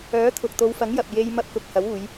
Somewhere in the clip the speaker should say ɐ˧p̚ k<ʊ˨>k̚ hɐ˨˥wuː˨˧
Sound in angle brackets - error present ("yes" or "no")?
yes